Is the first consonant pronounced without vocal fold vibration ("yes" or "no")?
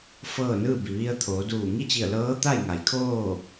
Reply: yes